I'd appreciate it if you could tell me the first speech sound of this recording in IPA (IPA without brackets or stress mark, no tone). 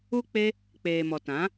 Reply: u